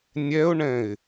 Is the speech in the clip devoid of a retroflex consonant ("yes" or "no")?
no